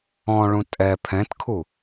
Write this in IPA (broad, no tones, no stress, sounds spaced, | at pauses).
ɔ̃ ɭ ũ tʼ ɛ pʰ ɛ̃ t kʰ u